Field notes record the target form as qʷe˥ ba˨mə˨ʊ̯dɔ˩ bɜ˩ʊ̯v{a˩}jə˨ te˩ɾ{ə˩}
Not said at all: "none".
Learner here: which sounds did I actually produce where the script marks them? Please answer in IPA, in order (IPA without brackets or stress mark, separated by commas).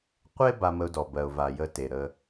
a˩, ə˨